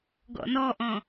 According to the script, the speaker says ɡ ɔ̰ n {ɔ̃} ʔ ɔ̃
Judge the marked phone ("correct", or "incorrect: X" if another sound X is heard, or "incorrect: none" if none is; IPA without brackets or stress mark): incorrect: ɔ